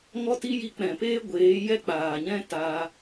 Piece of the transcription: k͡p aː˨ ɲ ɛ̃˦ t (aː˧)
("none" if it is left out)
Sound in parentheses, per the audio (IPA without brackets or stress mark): aː˧